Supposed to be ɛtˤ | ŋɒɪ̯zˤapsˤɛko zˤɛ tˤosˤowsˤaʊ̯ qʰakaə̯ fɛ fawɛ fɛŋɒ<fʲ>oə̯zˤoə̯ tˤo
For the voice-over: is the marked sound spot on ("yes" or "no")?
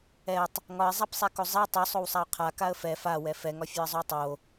yes